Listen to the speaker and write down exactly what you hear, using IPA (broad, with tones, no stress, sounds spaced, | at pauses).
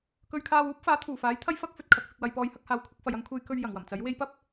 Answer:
k ɵ˧ ɥ kʰ aː˧ w uː˥ p̚ f aː˨˥ t̪ʰ uː˨˩ f aː˨˥ j t̪ʰ ɐ˥ j f ɐ˥ k̚ f ɵ˨ t̚ kʰ ɐ˨ k̚ f ɪ˨ k̚ w ɐ˨ j p ɔː˨˧ j h ɐ˧ k̚ h aː˨ w kʷʰ ɐ˧ k̚ f ɐ˨ j ɐ˧ ŋ kʷʰ e˧ j k ɵ˧ ɥ j ɐ˨˩ ŋ w ɐ˨˩ m t͡s ɐ˨˥ j w e˧ j p ɐ˥ p̚